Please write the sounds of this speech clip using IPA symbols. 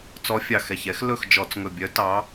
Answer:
t͡sɔ˧˥fʲɑ˧˩xɛ˧˩çɛ˧˥x lɵ˥˨xd͡ʒɔ˧˩˧t͡sŋɵ˧˩bʲœ˧˥ tɑ˧˥

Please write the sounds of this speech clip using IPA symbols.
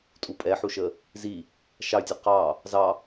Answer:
tʼupʼɛħuʃə | zi | ʃɑy̯tʲɔ qɑ | zɑ

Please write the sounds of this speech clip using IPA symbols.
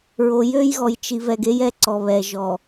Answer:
ɹo˨jø˦jɣɔ˨j t͡ʃi˨vɛ˨ɡ e˦jɛ˦ ǀɔ˨βɛ˨ ʒɔ˨

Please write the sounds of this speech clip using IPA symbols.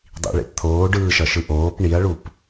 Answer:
dˤḭɭḛp t̪ʰoːɖɯːʃʌʃɯ ʔoːp ɳiɐ̯ɭup

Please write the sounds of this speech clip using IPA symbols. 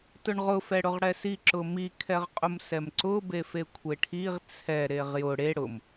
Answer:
tʊɳʁʊ fɛɽʊʁɽɛsi ǁʊmi kʰɛʁqʼʊmsɛmǀʊ befekʷʰeʈʰiʁ t͡sʰɛ ɾeʁjʊ ɽe ɽʊm

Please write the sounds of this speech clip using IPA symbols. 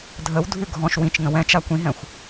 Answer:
dʱəwdʱʉ ɡʱɔ̃ʃ wĩt͡ʃ ŋə̃wɛ̃t͡ʃa kʷĩɦɛ̃xʷ

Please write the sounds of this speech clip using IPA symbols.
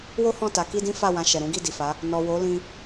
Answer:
wo˦hɔ̃˦˨ ta˨˦ki˦dĩ˦ fa˦˨wã˧ ʃɛ˨ɾũ˨˦ɡi˦˨ di˨fa˨˦ | nɔ˨wo˨˦lĩ˧

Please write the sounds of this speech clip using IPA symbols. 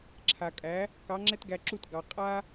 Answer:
ǁʰa˩kʼæ˩˥ | kɑ˩˥ŋ͡ǁɛ˥tɡæ˧ǁu˥˩t ɡɑ˩ qʼa˥

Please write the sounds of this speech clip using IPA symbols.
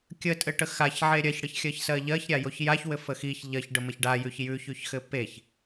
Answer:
kʲətʼɘʈə xaçʕe ɾʲɜçɽɘçxʲɜçsɜ ʎɜçɾʲajoç jaçwɘfə xiç ʎɜçɖəməç ɖajʉç jʉçʉçxɘ peç

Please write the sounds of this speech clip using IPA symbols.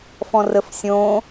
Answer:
fɔ̃rəfsʲõ

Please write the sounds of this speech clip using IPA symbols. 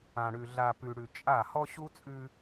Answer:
ã˨ɽʉ˨ ɮa˨pʉ˨ɽʉ˨ t͡ʃʼa˦˨ hɔ˦ɕu˦t͡sʼʉ˦

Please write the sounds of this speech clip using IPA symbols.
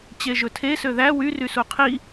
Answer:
t͡ɕeʒɵtʰe søðæ wy rysuqʰi

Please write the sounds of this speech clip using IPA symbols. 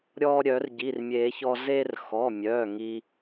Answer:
ɾʲɔ˧ ɾʲœ˨˩˦rɟi˩˧˩rmʲe˨˩˦çɔ˧ ze˧rxɔ˩˧˩mʲœ˩˧˩ ŋi˧

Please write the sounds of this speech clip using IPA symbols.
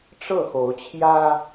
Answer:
ʈ͡ʂɤ˥˨xo˨˦ʊ̯t͡ɕʰjä˦

